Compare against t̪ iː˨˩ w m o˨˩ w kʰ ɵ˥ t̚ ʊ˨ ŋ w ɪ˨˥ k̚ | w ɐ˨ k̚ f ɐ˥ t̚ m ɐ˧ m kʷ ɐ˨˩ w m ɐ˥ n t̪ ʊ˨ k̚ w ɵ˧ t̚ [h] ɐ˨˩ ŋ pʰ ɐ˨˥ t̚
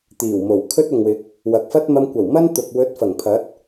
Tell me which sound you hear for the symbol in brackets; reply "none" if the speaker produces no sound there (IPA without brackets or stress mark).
f